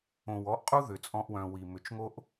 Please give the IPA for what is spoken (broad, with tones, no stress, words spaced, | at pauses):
õ˨wɔ˧ʔqʼu˦ ðʏ˨t͡sʼɔ̃˧ʔwœ̃˨ wi˨mʏ˨t͡ʃŋo˦ʔ